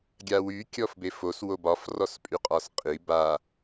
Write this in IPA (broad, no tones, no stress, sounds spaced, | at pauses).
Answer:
ɡʲ a w y kʲ ɔ f b e f o s w o b ɒ f r ɔ s pʼ y qʼ ɒ s qʼ i b a